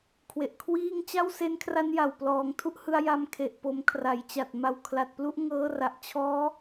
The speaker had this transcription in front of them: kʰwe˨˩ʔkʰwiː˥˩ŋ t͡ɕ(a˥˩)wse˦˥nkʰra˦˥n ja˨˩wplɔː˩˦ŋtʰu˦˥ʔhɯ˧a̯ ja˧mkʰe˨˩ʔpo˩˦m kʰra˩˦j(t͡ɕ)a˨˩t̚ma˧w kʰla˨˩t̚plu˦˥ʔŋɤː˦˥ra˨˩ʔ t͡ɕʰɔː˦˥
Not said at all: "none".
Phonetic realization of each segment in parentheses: a˥˩, t͡ɕ

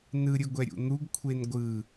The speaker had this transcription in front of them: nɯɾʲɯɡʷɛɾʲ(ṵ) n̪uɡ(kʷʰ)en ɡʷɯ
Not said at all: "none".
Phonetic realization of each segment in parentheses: ṵ, kʷʰ

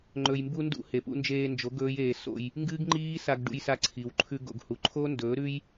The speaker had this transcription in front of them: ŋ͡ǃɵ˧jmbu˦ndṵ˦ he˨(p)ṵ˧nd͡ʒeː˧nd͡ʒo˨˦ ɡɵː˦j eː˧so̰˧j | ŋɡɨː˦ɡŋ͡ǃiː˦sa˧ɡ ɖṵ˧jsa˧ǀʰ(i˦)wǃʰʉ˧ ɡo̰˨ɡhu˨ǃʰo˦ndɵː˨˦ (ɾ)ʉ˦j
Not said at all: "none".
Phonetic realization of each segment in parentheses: p, i˨, ɾ

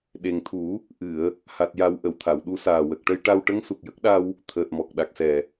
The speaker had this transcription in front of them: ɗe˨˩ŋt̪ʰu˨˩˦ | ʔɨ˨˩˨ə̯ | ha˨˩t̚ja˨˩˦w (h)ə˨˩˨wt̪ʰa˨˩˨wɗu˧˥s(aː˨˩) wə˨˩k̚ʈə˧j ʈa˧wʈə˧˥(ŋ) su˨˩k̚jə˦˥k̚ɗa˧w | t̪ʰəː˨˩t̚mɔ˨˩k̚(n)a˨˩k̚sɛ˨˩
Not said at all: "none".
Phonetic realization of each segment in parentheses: ʔ, aː˨˩, ŋ, ɗ

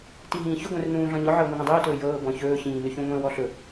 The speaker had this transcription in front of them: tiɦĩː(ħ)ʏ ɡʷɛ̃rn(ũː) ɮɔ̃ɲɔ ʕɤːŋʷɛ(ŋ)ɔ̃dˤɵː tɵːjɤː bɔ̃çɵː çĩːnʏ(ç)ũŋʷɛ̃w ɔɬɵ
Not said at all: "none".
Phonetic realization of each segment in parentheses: ç, ũː, ŋ, ç

